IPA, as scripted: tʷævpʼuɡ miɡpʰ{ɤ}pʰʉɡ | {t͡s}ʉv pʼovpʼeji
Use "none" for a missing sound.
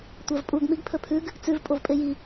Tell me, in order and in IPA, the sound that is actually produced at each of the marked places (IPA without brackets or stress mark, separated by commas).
ɵ, t͡s